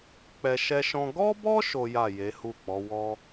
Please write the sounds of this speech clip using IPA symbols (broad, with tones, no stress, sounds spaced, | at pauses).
k͡p ɛ˧ ʃ ɛ˦ ʃ ɔ̃˦ ɡ ɔ˦ b ɔ˦ ʃ o˦ j a˦˨ j e˨˦ h u˦˨ k͡p ɔ˨˦ w ɔ˦